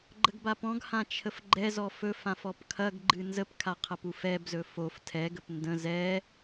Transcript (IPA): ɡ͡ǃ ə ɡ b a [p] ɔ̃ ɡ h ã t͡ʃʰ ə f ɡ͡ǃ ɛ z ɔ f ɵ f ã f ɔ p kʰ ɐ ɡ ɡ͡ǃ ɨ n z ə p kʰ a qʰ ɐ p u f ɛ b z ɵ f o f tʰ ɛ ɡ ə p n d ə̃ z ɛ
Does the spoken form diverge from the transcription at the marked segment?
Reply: no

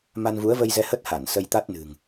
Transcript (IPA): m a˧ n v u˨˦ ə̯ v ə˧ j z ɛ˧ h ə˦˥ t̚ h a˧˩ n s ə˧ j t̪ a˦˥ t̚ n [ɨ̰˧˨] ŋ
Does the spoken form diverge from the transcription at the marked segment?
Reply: yes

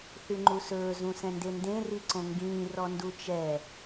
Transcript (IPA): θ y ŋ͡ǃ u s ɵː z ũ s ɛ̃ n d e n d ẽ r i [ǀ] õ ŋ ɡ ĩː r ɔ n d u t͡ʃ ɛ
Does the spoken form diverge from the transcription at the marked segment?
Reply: no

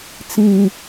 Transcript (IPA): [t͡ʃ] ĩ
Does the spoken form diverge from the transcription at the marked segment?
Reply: yes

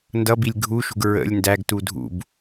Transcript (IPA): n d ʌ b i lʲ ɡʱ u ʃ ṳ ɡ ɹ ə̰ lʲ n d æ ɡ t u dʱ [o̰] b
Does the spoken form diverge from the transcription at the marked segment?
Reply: yes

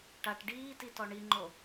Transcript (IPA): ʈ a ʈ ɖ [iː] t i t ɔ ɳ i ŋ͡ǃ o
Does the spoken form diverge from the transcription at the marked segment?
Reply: no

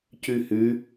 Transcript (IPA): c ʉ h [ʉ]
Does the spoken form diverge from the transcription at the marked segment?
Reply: no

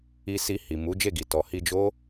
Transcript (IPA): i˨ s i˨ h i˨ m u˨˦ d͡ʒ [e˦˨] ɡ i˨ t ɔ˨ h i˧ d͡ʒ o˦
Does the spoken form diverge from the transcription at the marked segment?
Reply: no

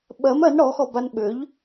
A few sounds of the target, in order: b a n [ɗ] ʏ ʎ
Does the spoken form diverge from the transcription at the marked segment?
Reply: yes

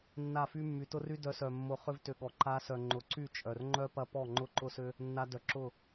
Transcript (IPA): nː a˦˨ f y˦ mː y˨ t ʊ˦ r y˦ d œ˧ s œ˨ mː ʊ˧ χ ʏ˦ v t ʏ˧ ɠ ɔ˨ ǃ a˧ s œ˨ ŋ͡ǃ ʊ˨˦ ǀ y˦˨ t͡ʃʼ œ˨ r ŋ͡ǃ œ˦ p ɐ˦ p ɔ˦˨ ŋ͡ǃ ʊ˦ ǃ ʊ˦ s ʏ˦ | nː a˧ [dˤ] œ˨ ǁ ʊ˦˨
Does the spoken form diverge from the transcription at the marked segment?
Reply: yes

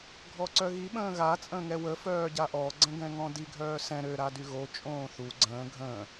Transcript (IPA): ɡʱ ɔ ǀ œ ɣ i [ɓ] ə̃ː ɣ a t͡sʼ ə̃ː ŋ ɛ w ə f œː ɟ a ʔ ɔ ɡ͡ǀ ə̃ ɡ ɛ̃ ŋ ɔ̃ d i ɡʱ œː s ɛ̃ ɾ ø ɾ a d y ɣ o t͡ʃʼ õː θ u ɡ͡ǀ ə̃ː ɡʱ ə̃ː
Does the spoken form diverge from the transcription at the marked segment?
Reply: no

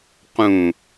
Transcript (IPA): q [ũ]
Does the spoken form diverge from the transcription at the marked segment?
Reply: no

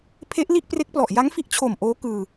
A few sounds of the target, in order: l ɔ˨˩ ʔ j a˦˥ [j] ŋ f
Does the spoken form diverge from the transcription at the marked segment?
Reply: yes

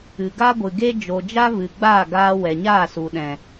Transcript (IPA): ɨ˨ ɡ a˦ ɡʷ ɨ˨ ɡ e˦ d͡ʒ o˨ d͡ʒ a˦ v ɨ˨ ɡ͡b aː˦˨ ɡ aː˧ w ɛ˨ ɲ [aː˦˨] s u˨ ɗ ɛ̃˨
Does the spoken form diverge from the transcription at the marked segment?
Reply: no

